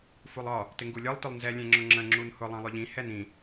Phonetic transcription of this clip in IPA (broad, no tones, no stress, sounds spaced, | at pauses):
f u lˠ ɒ | t ɪ ŋ ɡ u lʲ ɒ lˠ t ʊ lˠ n z ɛ lʲ ɛ̃ ŋ͡ǁ ʊ ŋ͡ǁ ə̃ ŋ͡ǁ u n h ʊ lˠ ɛ̃ lˠ ʊ ʎ ĩ h ɛ n ĩ